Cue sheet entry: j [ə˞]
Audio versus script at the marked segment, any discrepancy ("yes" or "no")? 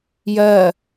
yes